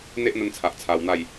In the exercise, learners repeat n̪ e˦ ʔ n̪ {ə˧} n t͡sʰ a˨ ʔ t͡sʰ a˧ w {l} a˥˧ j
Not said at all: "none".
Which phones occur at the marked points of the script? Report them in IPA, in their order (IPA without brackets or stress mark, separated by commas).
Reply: ə˧, n̪